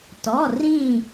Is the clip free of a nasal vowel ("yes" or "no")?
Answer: no